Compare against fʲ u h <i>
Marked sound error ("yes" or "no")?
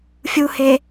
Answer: yes